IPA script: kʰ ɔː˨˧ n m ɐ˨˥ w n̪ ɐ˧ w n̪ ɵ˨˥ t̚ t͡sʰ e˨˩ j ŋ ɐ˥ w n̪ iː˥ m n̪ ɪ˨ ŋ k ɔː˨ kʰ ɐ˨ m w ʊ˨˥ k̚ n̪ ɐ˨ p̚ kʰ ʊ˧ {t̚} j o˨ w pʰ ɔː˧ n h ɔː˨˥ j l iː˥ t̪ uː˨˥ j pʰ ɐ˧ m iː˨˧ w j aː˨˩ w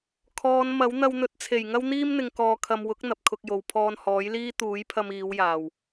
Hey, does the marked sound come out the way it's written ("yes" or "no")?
no